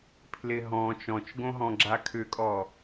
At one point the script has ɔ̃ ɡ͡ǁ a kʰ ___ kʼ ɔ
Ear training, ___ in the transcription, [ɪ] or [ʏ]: ʏ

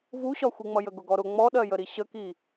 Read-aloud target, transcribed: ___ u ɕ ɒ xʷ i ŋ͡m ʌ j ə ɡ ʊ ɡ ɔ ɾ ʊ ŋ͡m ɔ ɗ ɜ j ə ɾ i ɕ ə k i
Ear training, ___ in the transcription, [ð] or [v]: v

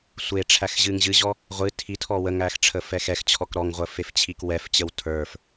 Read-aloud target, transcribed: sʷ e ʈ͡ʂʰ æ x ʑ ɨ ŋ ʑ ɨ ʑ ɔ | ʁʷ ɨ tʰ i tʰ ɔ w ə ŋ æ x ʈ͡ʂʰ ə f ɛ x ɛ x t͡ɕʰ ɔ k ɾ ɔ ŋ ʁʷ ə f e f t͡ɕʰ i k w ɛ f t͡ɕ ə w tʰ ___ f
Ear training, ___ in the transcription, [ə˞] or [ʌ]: ə˞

